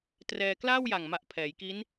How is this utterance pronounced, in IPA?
trɛː˧klaː˥˩wja˨˩ŋma˨˩ʔ pʰɛː˩˦jki˦˥n

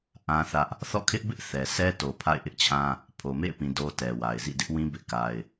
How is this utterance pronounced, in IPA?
ʔã˦θä˦ʔ | θɔ̰˦˨kʰɪ˦ʔbɪ˦ʔ θɛ˨sɛ˦ to˨ pʰa̰˦˨ɪ̯ʔɪ˦ʔt͡ɕʰã˦ | pʰo˨mḛ˦˨ɪ̯pĩ˨ do˦tɛ˨wa˨ɪ̯ zḭ˦˨dɪ˦ʔwĩ˦ bɪ˦ʔka˦ɪ̯

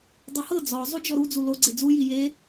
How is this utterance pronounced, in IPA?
dˤohɤ d͡zɔ zˤud͡ʒɔɾu d͡zulo ɡ͡ǀed͡zu jije

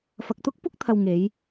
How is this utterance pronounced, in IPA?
fɐ˨k̚t̪ʊ˥k̚pʊ˥k̚t̪ʰɐ˨w ŋe˨˧j

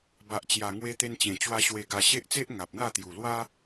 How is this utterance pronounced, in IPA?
ba˨ʔt͡ɕja˨˩ ŋwe˧t̪e˧nt͡ɕẽ˨˩t͡ɕwa˧ ɕwe˨˩ɡa˨˩ ɕe˦ʔt͡se˦ʔ ŋa˨p̚n̪a˥˧t̪ju˨˩ lwa˦

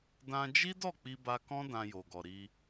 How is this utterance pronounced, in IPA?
dã˧d͡ʒi˦dɔ˦˨k͡pi˧ ba˧kɔ̃˦ dã˧jo˨ɡɔ˨ɾi˧

